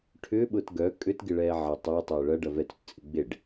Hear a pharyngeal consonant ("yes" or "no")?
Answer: yes